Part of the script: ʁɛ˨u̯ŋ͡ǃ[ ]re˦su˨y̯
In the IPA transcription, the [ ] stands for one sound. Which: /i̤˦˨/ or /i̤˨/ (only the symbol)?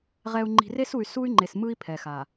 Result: i̤˨